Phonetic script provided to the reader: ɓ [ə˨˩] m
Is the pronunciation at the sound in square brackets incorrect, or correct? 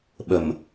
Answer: correct